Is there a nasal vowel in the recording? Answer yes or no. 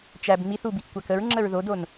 no